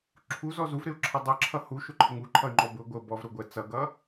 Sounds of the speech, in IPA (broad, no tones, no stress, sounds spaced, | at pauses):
ǁʰ u z ɔ z u v ɾ ɪ u̯ ǁʰ ʌ dˤ ʌ ǁʰ ʌ h u ʃ ʊ ǃʰ ɪ ŋ u ǃʰ ʌ y̯ ŋ͡ǃ ɔ b ʊ ɡʷ ə b ɔ v ɾ ʊ ɡʷ ɛ t͡s ʌ ɡ ʌ